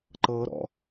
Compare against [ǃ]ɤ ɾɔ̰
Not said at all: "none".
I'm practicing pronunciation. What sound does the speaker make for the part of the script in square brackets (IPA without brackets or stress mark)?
ǃ